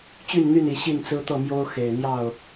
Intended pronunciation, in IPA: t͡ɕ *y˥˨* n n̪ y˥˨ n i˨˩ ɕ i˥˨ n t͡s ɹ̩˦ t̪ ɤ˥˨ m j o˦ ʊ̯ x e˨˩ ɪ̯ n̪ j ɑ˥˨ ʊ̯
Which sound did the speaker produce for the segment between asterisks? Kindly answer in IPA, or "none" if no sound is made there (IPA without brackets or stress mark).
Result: y˥˨